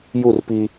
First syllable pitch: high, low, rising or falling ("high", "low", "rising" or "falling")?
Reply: falling